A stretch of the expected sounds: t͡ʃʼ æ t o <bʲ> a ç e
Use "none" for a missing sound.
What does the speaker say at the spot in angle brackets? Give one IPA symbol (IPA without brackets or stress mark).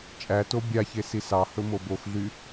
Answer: bʲ